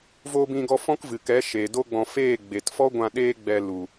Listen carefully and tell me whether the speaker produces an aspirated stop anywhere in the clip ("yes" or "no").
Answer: no